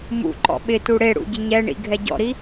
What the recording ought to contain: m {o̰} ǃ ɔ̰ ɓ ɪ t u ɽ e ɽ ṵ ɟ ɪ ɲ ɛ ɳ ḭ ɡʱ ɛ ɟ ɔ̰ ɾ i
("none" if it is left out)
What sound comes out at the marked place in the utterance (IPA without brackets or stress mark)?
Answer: ṵ